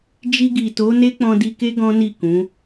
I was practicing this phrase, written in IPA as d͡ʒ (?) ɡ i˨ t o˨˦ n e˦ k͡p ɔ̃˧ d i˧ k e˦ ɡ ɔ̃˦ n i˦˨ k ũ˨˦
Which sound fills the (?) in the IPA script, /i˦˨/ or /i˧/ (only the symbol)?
i˧